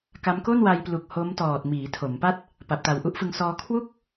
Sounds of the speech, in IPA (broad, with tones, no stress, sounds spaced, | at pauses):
k a˦˥ m k o˥˩ n w a˧ j p l u˨˩ k̚ h o˦˥ m t ɔː˨˩ t̚ m iː˩˦ tʰ o˩˦ m p a˥˩ t̚ | p a˨˩ p̚ t a˨˩ w ʔ u˦˥ ʔ f ɯ˧ ŋ s ɔː˧ kʰ w u˥˩ k̚